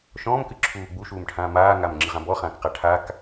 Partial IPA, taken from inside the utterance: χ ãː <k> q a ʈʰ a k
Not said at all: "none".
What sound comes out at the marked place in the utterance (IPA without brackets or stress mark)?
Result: k